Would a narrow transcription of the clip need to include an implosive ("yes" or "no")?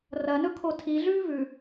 no